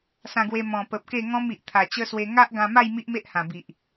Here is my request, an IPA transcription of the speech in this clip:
sã˧ɡwe˧ mɔ̃˨˩pə˨p̚ ke˥˧ŋɔ̃˦mi˨ʔ t̪ʰa˨˩ t͡ɕə˦swe˧ ŋa˦ʔɡã˧ma˥˧j mi˦ʔme˦ʔhã˨˩bi˨ʔ

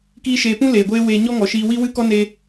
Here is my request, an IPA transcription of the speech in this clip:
kiː˦ʃeː˧ pũ˦ leː˨ɡʷeː˦weː˧ ɲɔ˦ŋɔ˨ʃiː˧ wi˦wɨ˦kɔ˦ne˧

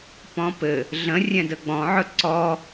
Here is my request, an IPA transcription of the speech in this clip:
pɔ̃pɘ | ɮə̃ rʲɛ̃dəɡ͡bɔ̃ʕɵ ǀɔ

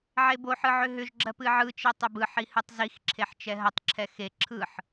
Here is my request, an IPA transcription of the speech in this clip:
ʕeboħɯ ʕʏɦʏʒɡ͡ǁɜp ɨʕɯt͡ʃe tˤʏbɯħi hɨtˤzixǁʰeħ t͡ʃɛɦətˤǁʰɛ xe ǁʰɯħ

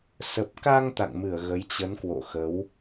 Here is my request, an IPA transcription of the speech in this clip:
sə˨˩p̚ka˧ŋ t̪a̰˧˨ŋmɨ˧˩ə̯ ɣə˨˦jt͡ɕə˨˦nkwo̰˧˨ xə˨˦w

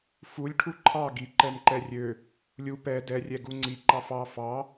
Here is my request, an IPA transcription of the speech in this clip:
fulʲ ʈʰuǃʰɑ ɡi ǃɛmǃɛrʲø | lʲu pɛ dɛ rʲɛɡuŋ͡ǀi ǃɑfɑ fɑ

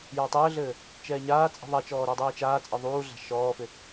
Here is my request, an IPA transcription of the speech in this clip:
jatˤɘːɮɘː | t͡ʃɛːɲaːt͡sʼi̤ ðˤat͡ʃɔː ɾudˤiːt͡ʃaːt͡sʼɘ ðˤuːɮa̤ ʃɔːfɪ

